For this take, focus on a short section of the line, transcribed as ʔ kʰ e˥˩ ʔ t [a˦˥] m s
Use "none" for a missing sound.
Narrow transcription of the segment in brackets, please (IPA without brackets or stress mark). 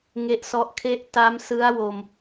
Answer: a˦˥